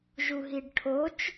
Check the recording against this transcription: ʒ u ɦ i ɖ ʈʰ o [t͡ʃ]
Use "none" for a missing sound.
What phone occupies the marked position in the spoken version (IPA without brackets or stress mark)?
t͡ʃ